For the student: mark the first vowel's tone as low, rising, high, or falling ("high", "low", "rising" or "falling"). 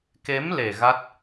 rising